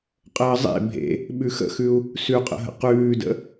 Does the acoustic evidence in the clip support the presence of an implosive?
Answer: yes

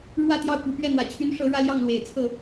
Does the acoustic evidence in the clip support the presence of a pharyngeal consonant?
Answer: no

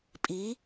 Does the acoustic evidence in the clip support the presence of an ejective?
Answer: yes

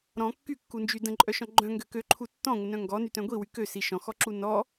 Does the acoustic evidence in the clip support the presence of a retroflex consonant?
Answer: no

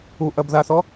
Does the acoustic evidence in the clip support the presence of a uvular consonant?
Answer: no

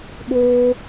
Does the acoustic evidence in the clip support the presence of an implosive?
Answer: yes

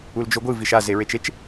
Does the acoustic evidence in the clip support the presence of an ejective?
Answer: no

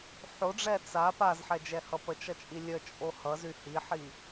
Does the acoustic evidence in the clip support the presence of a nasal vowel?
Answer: no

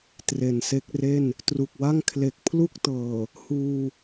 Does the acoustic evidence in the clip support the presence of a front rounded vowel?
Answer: no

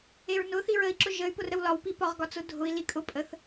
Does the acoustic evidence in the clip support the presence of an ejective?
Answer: yes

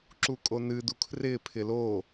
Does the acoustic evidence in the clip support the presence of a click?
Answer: yes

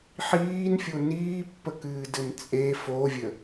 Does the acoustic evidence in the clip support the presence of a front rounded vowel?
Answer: no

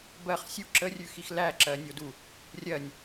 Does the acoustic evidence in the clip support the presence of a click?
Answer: yes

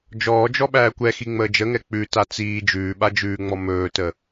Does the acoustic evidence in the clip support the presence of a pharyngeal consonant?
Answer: no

